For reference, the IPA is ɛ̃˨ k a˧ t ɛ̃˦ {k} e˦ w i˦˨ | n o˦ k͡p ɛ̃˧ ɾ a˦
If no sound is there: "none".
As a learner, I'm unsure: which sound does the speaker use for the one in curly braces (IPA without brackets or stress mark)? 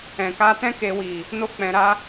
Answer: k